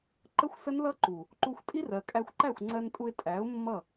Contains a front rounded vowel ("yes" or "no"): no